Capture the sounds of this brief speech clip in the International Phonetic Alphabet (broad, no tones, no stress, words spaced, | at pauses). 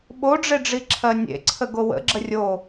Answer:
ɓoɖ͡ʐeɖ͡ʐiǁʰɜ nʲḛǀʰəɡo wə̰ɡ͡ǁə rʲo